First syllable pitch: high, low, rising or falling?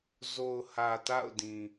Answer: low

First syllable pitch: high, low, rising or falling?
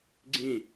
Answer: low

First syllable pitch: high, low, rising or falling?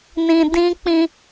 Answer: low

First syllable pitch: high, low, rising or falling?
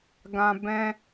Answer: high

